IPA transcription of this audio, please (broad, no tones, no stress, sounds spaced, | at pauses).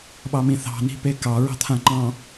ɓ ɑ m ĩ θ ɑ̤ n i̤ p e k ɑ ɹ ɑ̤ t̪ʰ ã ŋ͡ǃ ɑ̃